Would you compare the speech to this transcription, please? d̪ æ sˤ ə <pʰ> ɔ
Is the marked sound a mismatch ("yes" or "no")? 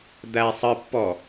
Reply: yes